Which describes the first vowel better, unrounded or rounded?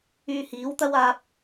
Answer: rounded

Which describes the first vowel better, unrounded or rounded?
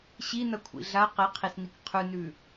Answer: unrounded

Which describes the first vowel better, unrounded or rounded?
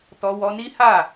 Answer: rounded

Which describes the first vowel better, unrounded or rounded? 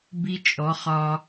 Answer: unrounded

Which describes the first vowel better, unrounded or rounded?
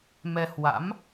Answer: unrounded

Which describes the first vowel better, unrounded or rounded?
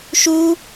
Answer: rounded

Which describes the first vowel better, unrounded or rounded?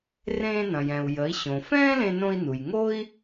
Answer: unrounded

